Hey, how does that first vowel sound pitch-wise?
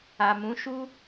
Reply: low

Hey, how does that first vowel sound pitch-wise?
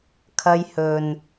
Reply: high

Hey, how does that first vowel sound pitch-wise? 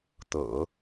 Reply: low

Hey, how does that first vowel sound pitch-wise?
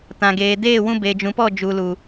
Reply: low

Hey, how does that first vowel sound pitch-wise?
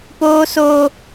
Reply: high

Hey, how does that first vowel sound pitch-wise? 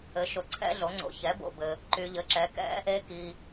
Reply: rising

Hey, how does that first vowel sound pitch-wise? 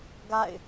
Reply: falling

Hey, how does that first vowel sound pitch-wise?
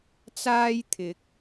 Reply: high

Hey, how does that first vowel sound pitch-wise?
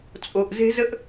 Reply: low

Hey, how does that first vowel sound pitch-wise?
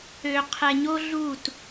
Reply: low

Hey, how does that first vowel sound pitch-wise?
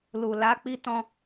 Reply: low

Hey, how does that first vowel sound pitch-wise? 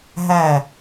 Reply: falling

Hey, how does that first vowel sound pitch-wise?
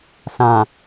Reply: low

